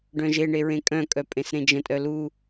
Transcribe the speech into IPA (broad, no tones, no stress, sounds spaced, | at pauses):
ɖ œ̃ ʒ e ɳ e ɹ ẽ kʼ œ̃ kʼ œ pʼ ẽ s ɾ ẽ d͡ʒ ə̃ tʼ œ l u